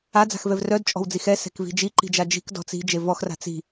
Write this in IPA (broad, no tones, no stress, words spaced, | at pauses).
ad͡za̤xvɛv rœdt͡ʃʼɔ̤wd͡zix ɛsɛ̤kvi̤ d͡ʒiǃi̤d͡ʒa d͡ʒi̤kdɔ̤ t͡si̤d͡ʒe vɔxra̤ t͡si̤